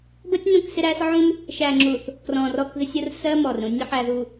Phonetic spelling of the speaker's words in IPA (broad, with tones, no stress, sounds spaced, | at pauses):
b ə˦ tʲ n ũ˦˨ k s ɪ˦ ɾ æ˦ s ʕ ũ˦ m | ʃ æ˨ ŋ͡ǁ u˨ θ | k r ɔ̃˨ r ɔ˦˨ k ð ɪ˦ sʲ ʊ˦ r s ɜ˦ m ɔ˨ r ɾ ũ˦ nʲ ə˦ ħ æ˨ ð u˨